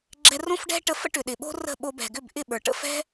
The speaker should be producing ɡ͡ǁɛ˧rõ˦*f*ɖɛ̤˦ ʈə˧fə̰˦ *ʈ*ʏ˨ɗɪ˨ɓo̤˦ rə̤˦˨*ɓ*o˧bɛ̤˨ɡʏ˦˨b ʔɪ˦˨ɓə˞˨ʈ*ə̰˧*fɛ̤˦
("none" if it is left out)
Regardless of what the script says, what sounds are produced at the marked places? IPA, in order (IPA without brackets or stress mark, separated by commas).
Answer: f, ʈ, ɓ, ə̰˧